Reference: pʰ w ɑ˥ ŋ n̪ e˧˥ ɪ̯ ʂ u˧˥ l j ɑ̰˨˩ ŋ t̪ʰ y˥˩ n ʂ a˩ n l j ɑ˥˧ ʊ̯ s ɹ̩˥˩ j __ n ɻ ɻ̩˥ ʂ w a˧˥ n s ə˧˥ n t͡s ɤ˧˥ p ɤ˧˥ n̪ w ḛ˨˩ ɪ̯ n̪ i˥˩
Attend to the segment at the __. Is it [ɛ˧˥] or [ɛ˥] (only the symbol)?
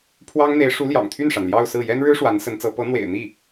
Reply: ɛ˥